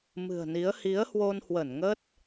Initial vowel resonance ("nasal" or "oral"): oral